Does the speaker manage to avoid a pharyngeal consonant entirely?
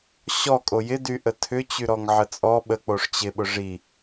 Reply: no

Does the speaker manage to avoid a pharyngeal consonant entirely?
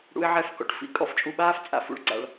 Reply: no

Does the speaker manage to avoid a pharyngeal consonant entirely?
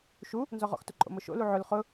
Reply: no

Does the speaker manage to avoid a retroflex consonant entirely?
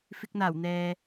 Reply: yes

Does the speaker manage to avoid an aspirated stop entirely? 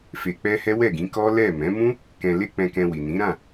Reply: yes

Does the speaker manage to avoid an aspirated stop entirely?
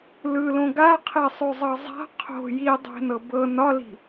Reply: no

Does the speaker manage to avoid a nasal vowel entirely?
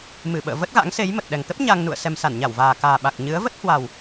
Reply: yes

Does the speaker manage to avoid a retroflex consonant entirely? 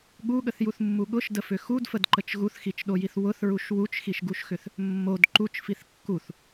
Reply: yes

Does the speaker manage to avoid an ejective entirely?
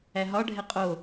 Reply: no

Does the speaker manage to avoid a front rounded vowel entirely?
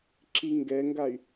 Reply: no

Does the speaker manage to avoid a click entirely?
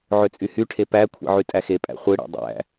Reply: yes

